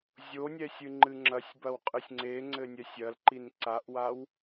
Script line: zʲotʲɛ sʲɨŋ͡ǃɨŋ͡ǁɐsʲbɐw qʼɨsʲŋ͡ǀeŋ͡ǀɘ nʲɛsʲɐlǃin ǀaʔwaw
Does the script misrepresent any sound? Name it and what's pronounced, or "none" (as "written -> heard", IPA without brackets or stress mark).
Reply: tʲ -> nʲ